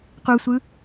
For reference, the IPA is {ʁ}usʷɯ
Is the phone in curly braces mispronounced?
yes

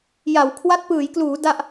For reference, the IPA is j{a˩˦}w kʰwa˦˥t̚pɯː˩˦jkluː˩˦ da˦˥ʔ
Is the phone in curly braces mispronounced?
no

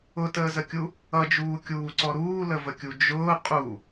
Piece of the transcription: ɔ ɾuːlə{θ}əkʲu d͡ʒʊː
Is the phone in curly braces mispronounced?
yes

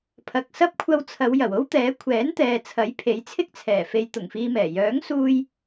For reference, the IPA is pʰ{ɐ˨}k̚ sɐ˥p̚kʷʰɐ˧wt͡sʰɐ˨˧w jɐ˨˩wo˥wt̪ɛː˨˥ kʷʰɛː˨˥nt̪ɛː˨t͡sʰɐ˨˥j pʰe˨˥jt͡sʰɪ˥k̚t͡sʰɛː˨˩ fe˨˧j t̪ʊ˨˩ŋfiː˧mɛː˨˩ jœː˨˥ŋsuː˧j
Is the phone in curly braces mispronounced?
no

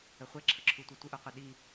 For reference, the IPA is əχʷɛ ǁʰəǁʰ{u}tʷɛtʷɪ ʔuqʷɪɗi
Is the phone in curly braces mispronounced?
no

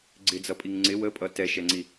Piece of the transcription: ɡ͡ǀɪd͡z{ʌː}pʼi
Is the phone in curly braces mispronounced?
yes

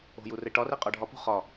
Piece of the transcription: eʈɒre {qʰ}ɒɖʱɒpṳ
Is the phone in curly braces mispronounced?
yes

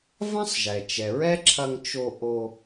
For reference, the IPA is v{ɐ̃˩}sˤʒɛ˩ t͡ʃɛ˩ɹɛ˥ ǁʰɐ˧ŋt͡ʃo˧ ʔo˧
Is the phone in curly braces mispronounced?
yes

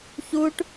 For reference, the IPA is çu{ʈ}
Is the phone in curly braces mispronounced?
no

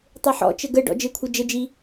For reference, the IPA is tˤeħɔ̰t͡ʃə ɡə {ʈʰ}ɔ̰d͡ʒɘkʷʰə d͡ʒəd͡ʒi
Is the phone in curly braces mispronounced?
yes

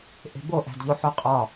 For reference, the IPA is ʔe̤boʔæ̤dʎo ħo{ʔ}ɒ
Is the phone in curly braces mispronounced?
yes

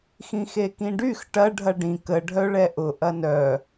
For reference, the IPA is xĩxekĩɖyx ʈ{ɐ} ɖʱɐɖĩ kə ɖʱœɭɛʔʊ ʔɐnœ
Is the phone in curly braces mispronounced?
no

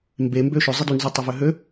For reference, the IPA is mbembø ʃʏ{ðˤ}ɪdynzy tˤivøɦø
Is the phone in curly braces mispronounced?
yes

